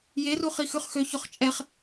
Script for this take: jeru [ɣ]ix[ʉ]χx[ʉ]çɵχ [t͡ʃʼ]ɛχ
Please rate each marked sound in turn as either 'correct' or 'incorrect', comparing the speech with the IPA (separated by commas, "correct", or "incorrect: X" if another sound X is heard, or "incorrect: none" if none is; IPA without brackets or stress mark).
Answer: incorrect: χ, correct, incorrect: ø, correct